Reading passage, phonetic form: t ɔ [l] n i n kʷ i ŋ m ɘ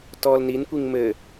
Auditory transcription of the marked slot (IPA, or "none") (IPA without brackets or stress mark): l